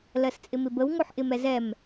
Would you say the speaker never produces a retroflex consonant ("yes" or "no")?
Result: yes